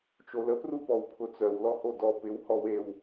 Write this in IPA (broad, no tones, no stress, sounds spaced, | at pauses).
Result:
t͡ʃ o l ə p r u p ɔ w pʰ ʊ t͡s œ w l ɔ h o d ɔ p ɪ w h ɔ w e w